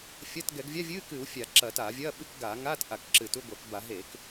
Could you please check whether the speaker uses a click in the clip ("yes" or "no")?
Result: yes